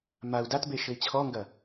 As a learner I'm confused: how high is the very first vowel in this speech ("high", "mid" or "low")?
low